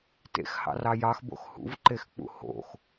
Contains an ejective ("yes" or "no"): no